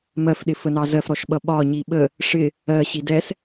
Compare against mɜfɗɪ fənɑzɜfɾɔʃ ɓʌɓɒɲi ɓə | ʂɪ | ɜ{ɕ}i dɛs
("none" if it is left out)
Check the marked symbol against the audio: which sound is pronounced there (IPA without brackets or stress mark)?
ɕ